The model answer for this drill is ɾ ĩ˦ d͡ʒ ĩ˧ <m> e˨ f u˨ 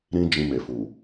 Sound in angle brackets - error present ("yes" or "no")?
no